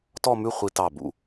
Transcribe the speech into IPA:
tɔ˥˧mʉ˥˧ χʷi˧tɑ˧˩bṵ˧˩

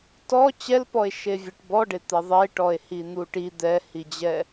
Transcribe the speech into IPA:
tɔ t͡ɕɛlpɔe̯ ʃevʲɛʈbɔɖe t̪ɛðˤeʈɔe̯ hin̪uʈi d̪ɛhid͡ʑɛ

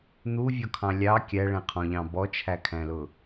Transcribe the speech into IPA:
n̪uvʲɔkʰɑ̃ lʲɑ kʲæɭæ̃qʰɔ̃ʎɑ̃ bɔt͡ʃʰækʰæ̃lʊ

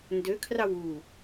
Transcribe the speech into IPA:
ndøkʰrɑw u

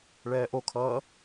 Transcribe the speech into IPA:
ɭɛːʔokʰʌː

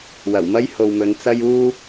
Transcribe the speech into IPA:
wɐ˨˩wmɐ˥jho˨wmɵ˨˧n t͡sɐ˥juː˥

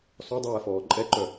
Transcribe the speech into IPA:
sɔdˤɛːfɔː ǃʼɛǃœ

